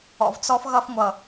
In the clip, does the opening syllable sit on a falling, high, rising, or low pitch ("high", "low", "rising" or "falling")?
low